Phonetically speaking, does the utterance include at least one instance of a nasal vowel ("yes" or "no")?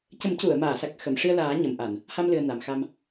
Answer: no